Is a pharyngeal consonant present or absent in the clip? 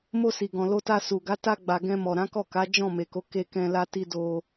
absent